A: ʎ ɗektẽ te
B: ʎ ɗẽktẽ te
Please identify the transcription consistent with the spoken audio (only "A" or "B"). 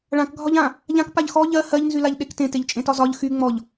A